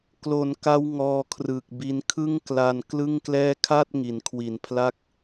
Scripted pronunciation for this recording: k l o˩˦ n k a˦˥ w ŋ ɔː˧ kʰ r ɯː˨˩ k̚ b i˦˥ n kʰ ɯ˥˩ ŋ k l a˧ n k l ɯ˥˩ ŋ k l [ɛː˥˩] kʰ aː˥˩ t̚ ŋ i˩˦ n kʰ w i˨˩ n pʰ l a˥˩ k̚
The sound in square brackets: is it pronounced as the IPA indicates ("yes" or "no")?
yes